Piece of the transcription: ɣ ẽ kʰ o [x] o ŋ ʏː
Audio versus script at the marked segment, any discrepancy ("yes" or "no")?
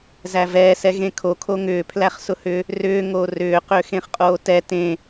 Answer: yes